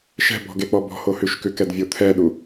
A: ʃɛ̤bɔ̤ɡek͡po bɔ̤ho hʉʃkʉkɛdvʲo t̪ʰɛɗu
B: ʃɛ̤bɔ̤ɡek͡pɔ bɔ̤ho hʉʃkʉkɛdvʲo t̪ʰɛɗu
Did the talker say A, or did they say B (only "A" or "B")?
B